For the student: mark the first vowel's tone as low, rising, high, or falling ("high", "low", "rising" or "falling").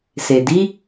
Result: low